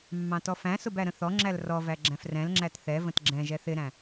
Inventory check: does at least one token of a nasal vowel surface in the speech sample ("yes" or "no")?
yes